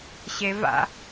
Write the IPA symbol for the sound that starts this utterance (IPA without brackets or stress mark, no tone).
ɕ